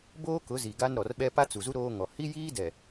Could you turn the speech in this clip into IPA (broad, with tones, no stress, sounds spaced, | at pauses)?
b oː˦ k ʊ˨˦ z i˨ ɡ a˦ n ɾ ɔ˨ r ɓ ɛ˦ p a˦ t͡s u˨ z u˦ ɾ oː˦ ŋ ɔ˨ h i˦ j iː˦ d ɛ˨